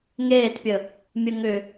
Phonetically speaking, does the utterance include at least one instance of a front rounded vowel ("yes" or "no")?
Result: yes